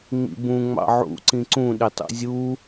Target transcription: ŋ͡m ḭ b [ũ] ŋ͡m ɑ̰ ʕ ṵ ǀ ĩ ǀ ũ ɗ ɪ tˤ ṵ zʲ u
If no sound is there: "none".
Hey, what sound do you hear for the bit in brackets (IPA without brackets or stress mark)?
ũ